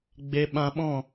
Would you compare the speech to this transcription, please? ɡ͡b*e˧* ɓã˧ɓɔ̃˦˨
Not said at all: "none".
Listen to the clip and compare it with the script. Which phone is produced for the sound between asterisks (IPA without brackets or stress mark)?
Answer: e˧